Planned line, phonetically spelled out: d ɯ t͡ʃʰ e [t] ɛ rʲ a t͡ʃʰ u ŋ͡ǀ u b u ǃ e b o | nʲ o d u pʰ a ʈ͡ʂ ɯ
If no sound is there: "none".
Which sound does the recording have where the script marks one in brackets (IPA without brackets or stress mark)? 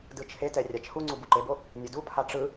t